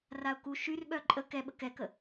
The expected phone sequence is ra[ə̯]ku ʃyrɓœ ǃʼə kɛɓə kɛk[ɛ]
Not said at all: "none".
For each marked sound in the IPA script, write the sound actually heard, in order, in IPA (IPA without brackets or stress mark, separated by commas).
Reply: ʊ̯, ə